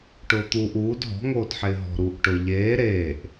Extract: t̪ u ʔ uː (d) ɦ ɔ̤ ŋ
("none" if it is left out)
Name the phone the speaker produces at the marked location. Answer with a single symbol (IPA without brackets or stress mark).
d